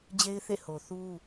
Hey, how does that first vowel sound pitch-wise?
high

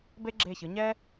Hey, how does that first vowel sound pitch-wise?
high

